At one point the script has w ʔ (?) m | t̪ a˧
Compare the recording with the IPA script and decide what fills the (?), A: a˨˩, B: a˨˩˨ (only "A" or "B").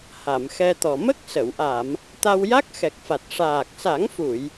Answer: B